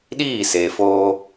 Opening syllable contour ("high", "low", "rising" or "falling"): falling